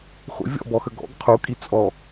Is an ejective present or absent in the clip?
present